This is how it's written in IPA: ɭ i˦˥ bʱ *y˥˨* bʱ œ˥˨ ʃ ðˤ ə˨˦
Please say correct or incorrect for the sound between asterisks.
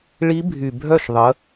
incorrect